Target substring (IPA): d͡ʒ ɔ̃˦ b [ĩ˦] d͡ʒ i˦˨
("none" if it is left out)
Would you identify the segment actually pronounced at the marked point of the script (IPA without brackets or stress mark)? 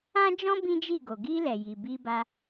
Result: ĩ˦